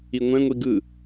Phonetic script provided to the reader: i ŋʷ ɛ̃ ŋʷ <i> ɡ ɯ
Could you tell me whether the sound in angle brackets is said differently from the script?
no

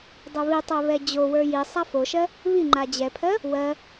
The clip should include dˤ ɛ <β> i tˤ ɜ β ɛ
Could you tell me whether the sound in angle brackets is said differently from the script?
no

